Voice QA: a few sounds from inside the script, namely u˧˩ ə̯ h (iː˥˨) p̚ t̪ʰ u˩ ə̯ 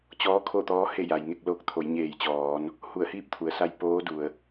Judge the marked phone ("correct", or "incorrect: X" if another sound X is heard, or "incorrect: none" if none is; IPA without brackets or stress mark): correct